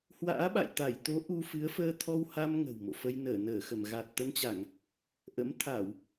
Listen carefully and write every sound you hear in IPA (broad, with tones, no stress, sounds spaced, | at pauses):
h w a̰ː˧˥ ɓ a̰˧˨ j t̪ a˧˩ j t̪ o˨˦ ʔ u˧ f ɨ˨˦ ə̯ f əː˧ t̪ʰ ɔ˧ w h a˧ m ŋ ə̤˨˩ w m o̰˧˨ f ə˧ j n əː˧˩ n əː˧˩ x ə˧˩ m ɣ a˨˩ t̚ t̪ ə˧ n t͡ɕ a˧˩˨ ŋ | ʔ ə̰˧˥ m t̪ʰ a˧˩˨ w